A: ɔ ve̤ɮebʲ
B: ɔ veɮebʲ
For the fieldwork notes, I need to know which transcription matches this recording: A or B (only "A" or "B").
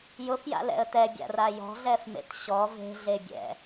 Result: A